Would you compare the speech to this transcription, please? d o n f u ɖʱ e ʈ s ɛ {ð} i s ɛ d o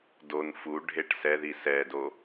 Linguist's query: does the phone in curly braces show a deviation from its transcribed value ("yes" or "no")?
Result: no